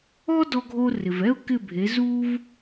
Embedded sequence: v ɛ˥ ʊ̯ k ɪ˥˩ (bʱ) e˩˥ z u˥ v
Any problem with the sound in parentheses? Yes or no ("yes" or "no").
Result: no